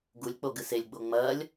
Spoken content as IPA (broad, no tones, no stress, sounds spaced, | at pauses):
ɡ u lʲ k͡p o ɡ ɨ s e lʲ ɡ͡b o ŋ͡m ɐː lʲ